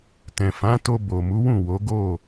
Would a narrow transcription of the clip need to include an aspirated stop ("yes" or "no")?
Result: no